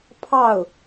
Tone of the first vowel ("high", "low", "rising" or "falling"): falling